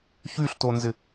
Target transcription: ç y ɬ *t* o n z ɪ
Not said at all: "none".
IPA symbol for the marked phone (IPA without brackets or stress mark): t